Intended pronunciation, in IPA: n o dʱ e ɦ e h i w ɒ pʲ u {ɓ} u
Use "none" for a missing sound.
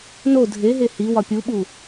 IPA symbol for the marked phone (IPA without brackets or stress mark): ɓ